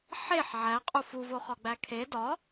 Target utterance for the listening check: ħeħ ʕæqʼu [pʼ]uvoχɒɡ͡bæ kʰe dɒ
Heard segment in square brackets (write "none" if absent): f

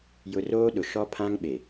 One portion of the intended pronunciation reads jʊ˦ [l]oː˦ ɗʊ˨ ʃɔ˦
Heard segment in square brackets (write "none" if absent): r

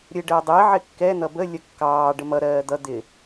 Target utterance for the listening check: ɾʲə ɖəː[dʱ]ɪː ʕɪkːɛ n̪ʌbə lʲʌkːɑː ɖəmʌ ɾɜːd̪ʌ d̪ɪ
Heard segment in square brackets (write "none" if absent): dˤ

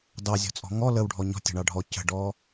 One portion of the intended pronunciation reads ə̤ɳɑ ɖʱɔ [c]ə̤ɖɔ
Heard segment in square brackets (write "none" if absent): c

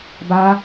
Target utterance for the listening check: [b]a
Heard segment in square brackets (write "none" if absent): b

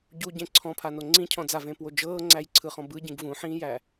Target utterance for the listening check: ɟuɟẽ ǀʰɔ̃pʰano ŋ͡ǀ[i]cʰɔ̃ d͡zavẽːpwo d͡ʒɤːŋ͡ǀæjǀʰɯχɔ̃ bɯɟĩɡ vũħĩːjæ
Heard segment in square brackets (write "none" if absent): ĩ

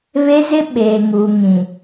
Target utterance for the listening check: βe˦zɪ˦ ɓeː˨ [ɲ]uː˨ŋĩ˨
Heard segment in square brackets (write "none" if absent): ŋ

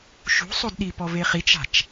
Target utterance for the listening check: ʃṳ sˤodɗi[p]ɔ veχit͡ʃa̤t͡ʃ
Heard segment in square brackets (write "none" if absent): p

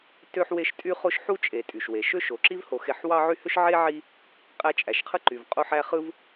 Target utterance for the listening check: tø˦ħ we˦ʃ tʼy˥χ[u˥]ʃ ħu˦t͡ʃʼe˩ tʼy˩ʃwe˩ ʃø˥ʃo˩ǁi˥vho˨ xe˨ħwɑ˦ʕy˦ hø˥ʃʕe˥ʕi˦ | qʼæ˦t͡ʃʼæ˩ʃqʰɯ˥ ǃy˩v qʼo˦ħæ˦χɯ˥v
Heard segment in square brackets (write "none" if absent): o˥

